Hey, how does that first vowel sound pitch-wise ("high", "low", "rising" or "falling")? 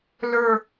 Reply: falling